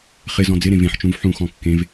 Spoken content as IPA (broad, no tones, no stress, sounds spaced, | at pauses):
χ ɪ z ɔ̃ d͡z ɪ ɾ ẽ v ẽ ħ t͡ʃ ũ v ħ ũ x ɔ̃ kː ẽ v